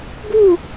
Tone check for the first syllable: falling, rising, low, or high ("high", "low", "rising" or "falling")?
falling